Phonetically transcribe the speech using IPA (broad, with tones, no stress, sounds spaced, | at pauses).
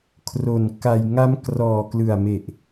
kʰ r o˨˩ n k a˧ j ŋ a˦˥ m k r ɔː˨˩ k l ɯ˨˩ a̯ m e˨˩ ʔ